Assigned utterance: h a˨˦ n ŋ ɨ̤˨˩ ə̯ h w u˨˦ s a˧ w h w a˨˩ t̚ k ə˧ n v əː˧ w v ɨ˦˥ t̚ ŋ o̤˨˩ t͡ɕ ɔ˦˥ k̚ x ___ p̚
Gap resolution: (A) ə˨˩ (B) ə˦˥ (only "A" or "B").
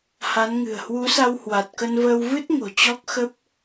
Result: B